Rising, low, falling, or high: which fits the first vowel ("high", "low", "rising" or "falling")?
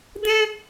high